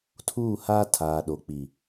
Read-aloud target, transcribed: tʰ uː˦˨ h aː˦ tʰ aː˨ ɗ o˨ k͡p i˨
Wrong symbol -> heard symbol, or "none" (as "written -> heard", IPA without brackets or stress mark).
none